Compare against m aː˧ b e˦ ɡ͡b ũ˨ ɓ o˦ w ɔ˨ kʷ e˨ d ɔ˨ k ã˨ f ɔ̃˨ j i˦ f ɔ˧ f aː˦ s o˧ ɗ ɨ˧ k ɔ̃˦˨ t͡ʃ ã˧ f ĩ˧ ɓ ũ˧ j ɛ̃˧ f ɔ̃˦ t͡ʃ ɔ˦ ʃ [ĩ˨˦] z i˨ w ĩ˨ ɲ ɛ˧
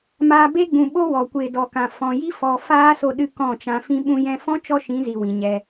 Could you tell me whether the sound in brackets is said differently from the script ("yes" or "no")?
no